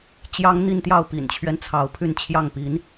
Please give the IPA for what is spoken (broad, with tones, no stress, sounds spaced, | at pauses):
t͡ɕ j ɑ˥ ŋ n̪ i˥˧ n t̪ j ɑ˥˩ ʊ̯ p ḭ˨˩ n t͡ɕʰ ɥ ɛ˦ n t͡sʰ ɑ˧˥ ʊ̯ pʰ y˥˧ n t͡ɕʰ j ɑ˥˩ ŋ p i˧˥ n